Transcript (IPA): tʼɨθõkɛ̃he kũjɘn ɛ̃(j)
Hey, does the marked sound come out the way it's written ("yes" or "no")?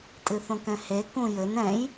yes